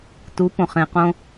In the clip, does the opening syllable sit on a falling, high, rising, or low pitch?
rising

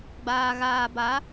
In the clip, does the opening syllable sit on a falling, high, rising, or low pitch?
low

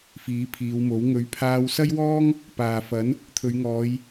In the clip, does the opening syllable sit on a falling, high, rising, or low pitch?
rising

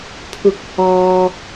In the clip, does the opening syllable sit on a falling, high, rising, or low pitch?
rising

